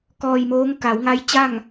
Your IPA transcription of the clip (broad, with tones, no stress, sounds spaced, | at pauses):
k ɔː˧ j m oː˧˥ ŋ k a˩˧ w ŋ a˧˥ j t͡ɕ a˥˨ ŋ